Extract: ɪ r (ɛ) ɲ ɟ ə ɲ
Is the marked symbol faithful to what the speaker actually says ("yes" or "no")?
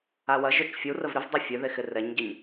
yes